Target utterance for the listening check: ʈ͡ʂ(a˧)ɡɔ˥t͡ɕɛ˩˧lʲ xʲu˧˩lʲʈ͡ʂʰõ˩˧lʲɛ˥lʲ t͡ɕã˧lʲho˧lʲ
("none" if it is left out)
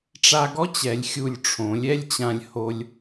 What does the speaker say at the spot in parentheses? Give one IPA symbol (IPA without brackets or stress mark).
a˧